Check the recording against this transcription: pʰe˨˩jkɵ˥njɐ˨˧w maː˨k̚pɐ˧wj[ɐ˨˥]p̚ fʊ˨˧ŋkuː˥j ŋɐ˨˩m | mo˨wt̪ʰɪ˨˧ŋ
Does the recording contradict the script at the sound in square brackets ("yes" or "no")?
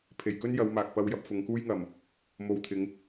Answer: yes